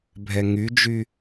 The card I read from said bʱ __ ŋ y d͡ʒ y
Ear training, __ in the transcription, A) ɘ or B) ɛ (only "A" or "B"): B